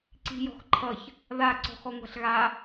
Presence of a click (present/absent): present